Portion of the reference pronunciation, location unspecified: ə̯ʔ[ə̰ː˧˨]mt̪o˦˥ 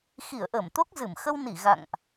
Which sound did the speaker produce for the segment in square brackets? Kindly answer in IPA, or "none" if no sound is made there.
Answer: əː˧˩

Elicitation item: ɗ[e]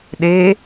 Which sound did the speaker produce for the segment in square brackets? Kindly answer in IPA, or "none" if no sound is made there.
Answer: e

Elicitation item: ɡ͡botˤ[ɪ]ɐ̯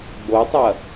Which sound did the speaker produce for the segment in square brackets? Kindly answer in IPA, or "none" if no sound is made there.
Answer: ɪ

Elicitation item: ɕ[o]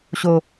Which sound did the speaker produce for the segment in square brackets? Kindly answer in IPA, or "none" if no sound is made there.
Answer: o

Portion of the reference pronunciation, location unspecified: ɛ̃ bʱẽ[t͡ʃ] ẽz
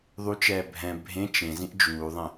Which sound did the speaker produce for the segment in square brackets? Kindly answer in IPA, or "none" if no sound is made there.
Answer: t͡ʃ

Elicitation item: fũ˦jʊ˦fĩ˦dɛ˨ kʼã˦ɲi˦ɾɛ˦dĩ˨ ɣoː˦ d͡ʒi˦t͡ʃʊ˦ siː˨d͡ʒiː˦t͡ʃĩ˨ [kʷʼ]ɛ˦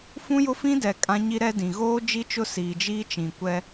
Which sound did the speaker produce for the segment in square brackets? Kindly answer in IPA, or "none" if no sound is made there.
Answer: kʷ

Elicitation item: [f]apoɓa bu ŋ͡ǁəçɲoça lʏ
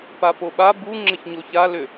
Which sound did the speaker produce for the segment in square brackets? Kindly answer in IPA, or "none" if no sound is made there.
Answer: p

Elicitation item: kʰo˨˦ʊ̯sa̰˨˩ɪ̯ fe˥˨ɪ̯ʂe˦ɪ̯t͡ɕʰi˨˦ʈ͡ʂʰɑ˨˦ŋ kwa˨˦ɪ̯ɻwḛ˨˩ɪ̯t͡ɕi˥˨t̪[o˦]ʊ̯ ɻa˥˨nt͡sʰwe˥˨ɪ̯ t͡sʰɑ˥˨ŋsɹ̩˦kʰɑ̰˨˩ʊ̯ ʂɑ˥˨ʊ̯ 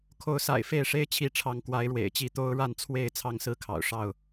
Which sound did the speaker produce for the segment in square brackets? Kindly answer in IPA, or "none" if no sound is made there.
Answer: o˦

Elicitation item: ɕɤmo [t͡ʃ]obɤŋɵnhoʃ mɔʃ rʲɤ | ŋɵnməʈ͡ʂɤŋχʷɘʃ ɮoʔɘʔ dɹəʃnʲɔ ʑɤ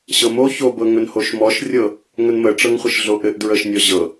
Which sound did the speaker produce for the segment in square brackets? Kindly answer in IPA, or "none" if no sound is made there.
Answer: ç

